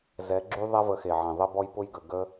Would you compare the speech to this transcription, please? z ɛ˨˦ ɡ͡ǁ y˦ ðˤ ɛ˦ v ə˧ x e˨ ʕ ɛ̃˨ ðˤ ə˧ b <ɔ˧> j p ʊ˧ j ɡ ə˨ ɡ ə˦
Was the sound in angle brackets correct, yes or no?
yes